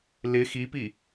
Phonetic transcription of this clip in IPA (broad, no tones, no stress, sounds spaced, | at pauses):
l ɪ x i p i